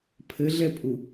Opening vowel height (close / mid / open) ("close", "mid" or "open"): mid